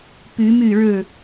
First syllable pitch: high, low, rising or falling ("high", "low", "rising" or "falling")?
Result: rising